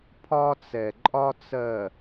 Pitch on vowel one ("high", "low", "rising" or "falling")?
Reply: high